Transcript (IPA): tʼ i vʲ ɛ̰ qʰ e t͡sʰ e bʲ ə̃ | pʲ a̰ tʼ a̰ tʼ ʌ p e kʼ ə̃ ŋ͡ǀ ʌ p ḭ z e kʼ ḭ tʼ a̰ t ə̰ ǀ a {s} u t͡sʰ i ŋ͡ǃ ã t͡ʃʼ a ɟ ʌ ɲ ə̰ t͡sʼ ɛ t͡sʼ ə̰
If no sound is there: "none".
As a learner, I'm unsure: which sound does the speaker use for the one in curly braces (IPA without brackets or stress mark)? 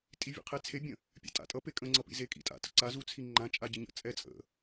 z